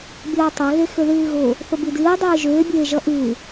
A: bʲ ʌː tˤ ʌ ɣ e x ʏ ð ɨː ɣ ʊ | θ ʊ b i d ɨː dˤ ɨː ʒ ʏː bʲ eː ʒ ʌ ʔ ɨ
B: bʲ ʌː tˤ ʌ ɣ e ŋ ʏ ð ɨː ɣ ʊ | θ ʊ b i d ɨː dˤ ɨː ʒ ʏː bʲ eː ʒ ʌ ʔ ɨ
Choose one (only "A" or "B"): A